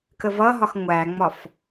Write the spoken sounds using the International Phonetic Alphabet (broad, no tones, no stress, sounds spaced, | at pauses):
k ə v ʌ ɦ ɒ x ŋʷ æ ŋ͡m ɒ f